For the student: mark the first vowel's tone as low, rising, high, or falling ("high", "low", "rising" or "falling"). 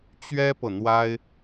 high